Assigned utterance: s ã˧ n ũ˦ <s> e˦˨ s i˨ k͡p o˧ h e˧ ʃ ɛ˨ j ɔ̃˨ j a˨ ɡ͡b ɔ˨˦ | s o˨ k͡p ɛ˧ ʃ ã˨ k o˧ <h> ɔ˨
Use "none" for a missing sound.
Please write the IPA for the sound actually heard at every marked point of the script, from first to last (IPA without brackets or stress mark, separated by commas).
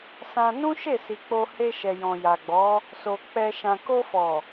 ʃ, f